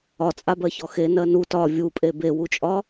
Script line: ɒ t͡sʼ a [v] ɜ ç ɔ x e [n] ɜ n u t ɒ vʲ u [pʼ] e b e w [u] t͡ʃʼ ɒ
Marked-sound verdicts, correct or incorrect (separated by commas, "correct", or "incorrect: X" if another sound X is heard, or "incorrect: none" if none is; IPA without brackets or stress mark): incorrect: b, correct, correct, correct